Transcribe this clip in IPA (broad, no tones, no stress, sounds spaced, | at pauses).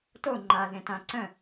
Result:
t o ŋ͡ǃ a ð ẽ t ã ǀ ə̃